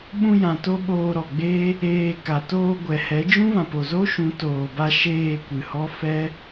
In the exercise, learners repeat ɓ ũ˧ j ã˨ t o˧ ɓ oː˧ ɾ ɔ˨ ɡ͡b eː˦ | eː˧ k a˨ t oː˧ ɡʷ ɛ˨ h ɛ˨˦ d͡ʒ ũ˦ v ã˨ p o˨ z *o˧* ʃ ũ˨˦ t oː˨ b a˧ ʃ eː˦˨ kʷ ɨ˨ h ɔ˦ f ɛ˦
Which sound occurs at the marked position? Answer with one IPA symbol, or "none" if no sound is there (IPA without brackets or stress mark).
o˦